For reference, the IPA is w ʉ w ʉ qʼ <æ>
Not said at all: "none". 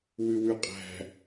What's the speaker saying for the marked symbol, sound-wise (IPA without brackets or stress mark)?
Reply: æ̤